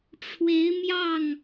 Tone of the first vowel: rising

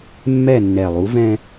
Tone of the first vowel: falling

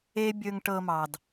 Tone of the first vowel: high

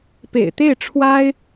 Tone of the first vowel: low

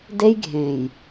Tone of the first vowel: high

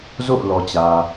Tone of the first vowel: falling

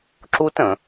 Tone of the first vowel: high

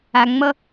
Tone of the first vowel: low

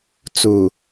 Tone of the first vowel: low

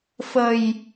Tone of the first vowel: low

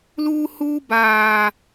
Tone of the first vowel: high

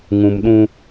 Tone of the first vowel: low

